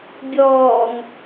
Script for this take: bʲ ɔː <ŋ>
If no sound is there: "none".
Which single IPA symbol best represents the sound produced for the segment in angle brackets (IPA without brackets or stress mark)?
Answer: ŋ